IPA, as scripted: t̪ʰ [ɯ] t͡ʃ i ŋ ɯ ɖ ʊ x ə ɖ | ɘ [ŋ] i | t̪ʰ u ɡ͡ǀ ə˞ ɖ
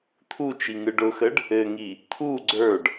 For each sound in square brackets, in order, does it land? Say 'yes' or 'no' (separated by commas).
no, yes